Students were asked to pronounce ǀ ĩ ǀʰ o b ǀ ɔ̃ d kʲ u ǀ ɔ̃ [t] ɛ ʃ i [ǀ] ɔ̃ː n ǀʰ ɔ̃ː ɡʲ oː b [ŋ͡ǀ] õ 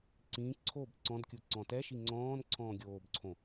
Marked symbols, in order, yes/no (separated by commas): yes, no, no